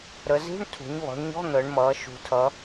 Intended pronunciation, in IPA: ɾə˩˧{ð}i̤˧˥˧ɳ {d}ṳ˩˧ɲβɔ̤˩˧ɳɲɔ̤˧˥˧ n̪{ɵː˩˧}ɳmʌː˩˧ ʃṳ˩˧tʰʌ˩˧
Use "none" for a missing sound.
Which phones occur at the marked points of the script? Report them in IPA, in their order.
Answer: z, tʰ, əː˩˧

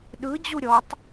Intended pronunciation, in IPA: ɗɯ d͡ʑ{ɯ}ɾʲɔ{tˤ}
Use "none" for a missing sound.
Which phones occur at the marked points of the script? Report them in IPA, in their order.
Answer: u, tˤ

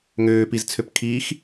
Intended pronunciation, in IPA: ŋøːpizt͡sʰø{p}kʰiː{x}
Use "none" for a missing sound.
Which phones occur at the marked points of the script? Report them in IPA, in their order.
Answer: p, x

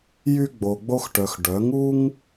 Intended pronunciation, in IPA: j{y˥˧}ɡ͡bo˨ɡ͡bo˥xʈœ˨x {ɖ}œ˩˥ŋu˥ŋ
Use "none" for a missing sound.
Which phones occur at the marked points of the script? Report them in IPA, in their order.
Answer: y˥, ɖ

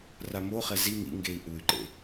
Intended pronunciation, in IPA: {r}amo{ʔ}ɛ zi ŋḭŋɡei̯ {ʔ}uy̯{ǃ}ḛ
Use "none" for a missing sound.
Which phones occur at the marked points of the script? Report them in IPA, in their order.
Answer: r, χ, ʔ, ǃ

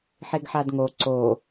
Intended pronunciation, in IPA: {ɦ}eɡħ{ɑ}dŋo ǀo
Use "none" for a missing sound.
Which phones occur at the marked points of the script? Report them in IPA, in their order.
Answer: ħ, a

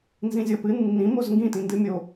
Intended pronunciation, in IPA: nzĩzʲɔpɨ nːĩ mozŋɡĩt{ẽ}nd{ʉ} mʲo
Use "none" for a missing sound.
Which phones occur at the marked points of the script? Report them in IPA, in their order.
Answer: ĩ, ɨ

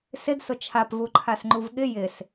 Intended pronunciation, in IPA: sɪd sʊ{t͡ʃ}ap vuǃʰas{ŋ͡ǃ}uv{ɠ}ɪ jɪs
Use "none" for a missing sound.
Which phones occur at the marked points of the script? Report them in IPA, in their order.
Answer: t͡ʃʰ, ŋ͡ǃ, ɠ

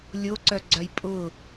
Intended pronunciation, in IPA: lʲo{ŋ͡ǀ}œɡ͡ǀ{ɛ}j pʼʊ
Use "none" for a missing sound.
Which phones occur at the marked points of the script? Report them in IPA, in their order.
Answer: ǀ, œ

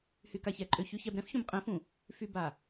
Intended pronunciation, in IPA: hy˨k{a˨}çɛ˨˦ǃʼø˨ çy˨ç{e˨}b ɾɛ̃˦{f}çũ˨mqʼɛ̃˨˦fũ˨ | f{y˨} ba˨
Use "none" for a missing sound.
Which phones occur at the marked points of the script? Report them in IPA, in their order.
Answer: a˨, ɛ˨, f, y˨

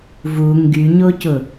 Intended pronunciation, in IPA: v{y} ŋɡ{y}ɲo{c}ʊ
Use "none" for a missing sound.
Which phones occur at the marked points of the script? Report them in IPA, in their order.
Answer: u, y, c

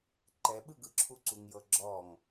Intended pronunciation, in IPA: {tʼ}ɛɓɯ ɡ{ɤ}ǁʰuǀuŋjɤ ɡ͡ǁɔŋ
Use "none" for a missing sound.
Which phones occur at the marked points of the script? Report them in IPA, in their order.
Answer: ǃ, ɯ

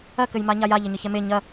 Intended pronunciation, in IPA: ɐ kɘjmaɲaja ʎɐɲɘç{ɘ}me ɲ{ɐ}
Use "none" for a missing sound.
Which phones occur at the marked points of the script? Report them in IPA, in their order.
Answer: ɛ, ɐ

